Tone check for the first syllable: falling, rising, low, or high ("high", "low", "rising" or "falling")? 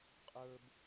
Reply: high